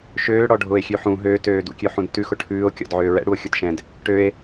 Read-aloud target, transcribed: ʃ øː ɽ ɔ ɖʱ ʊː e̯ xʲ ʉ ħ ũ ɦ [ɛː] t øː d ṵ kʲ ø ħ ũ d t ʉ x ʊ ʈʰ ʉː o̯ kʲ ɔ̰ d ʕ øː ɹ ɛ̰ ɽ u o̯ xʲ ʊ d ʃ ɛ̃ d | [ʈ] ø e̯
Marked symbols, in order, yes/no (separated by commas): no, yes